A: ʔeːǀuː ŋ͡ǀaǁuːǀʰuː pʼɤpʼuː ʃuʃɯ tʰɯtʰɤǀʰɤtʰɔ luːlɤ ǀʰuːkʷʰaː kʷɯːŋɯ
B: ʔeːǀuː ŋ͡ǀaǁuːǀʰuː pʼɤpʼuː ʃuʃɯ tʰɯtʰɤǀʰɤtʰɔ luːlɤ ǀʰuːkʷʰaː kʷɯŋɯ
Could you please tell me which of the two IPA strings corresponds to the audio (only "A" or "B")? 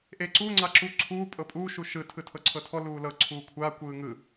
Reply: A